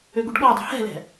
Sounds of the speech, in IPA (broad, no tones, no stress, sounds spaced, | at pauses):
ø ɡ u ɖ ɠ ɔ dˤ ṳ h ɛ̤ l ɛ̤